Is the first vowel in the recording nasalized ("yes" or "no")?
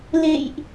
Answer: no